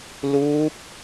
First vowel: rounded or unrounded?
rounded